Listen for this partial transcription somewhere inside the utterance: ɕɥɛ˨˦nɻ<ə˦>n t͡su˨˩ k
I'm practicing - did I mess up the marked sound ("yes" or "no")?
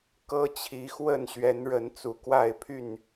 yes